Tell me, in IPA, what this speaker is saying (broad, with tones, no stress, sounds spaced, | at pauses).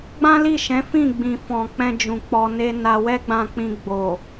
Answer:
ɡ͡b ã˦ l i˦˨ ʃ ɛ̃˨˦ f ĩ˦˨ ɡ͡b ĩ˨ f ɔ̃˨ k͡p ɛ̃˧ d͡ʒ ũ˨ k͡p ɔ˨ n e˧ n a˧ w ɛ˦ ɡ͡b ã˧ k͡p ĩ˧ ɡ͡b o˨